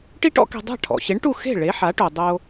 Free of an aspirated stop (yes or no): no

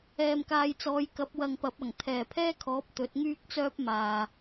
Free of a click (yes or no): yes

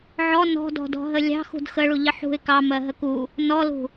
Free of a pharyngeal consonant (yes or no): no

